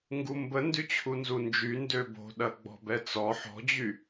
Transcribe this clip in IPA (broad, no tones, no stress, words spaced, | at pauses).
ŋɡumbə ndyt͡ɕʰunzund͡ʒy ndøbo̤ɗɐ ɡ͡bɔ̤bɛt͡sɔ ħɔ̤d͡ʑy